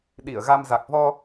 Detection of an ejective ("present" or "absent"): absent